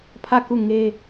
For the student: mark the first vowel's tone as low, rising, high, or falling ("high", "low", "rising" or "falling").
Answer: falling